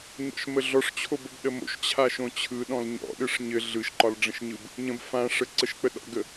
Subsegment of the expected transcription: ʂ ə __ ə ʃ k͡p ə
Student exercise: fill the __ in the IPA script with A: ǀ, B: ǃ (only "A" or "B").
A